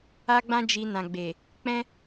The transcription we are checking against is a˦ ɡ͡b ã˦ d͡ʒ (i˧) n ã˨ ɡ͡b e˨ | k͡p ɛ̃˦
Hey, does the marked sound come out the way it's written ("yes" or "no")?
yes